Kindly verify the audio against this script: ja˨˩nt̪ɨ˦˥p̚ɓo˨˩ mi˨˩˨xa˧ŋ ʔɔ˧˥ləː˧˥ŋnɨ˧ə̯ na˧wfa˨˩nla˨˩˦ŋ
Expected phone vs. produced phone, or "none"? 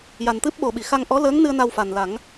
m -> ɓ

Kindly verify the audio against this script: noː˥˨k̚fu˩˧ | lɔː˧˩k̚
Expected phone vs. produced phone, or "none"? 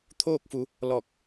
n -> t̪ʰ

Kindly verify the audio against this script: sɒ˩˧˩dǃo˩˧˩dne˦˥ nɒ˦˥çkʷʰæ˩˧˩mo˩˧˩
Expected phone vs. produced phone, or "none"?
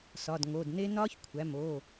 ǃ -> ŋ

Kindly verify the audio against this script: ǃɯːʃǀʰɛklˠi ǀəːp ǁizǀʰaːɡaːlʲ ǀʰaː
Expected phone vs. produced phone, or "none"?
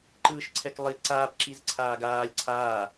əː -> aː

